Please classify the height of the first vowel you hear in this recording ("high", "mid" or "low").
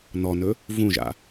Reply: mid